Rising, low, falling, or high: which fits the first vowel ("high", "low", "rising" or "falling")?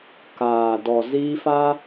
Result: low